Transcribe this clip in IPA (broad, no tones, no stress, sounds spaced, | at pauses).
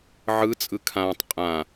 ʕ ɯ t͡sʼ ɯ kʰ ãː tˤ qʼ ã